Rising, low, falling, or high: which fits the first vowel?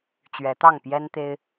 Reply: rising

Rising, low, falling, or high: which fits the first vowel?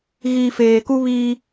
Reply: low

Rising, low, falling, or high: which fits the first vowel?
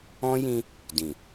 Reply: high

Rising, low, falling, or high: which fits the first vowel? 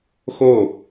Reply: falling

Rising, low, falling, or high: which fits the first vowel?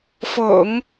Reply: low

